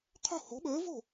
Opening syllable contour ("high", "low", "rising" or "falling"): falling